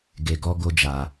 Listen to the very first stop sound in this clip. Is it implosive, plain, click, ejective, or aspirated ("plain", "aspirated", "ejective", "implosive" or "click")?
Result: plain